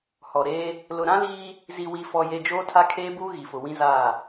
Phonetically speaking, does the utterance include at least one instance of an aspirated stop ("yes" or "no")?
yes